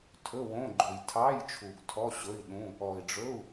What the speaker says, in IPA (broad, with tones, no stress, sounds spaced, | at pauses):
tʰ ɵ˧˥˧ w õ˧˥˧ ɡ͡ǃ o˨ j tʰ ɑ˧˥˧ j t͡ʃʰ u˨ ɡ tʰ ɔ˧˥˧ ɕ ɵ˧˥˧ i̯ ɗ ũ˧˥˧ | ɔ˨ i̯ ɖ͡ʐ ɵ˧˥˧ u̯